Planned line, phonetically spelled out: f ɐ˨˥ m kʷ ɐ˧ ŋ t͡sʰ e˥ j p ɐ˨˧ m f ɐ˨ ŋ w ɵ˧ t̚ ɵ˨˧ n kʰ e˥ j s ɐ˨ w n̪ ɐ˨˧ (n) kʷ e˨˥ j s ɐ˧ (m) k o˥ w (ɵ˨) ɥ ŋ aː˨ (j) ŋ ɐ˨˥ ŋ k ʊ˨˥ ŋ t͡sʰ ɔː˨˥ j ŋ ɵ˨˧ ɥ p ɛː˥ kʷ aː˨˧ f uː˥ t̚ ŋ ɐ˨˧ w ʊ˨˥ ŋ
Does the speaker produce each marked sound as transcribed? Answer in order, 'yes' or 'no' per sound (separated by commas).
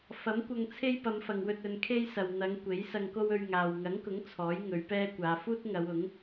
no, no, no, no